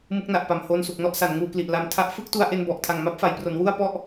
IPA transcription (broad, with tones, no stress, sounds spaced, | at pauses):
m ɯ˦˥ k̚ n a˨˩ ʔ p a˨˩ m h oː˧ n s u˨˩ k̚ n ɔ˦˥ ʔ s a˩˦ n ŋ uː˧ k l i˨˩ ʔ l a˧ m tʰ a˥˩ ʔ f ɯ˥˩ k̚ t u˧ a̯ ʔ e˧ n b ɔ˨˩ ʔ tʰ a˨˩ ŋ m a˦˥ p̚ f a˨˩ j p r o˩˦ n w u˥˩ a̯ p ɔ˥˩ ʔ